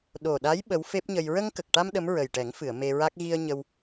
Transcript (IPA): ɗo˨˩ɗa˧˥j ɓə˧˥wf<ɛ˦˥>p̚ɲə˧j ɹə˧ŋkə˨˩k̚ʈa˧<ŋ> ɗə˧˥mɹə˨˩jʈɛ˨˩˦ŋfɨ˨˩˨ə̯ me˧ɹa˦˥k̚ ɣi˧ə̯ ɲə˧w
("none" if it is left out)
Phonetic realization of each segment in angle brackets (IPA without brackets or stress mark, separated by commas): e˦˥, m